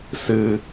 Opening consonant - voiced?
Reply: no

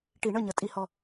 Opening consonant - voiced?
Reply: no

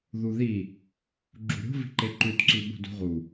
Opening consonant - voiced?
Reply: yes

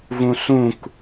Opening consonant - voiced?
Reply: yes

